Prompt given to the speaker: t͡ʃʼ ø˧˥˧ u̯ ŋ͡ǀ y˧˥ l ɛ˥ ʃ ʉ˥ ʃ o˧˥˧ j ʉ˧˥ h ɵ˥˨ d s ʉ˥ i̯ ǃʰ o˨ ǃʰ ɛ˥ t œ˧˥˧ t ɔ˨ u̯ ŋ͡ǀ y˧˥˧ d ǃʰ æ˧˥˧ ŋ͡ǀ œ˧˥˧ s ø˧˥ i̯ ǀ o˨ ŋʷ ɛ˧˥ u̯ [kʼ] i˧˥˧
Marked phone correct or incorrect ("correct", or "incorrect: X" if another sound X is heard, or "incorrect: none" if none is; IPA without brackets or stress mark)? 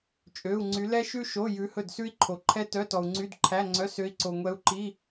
incorrect: ǃ